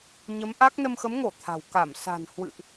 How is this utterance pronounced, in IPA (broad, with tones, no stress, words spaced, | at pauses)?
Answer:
ɲə˨˦mʔa˦˥k̚ nə˧mxə˨˦mŋo˧˩ t̪ʰa̤˨˩w ka˧˩m sa̤˨˩n hwɨ̰˧˨ʔ